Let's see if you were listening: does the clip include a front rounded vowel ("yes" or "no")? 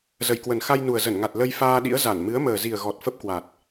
no